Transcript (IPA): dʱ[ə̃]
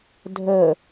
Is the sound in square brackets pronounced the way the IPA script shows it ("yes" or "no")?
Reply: no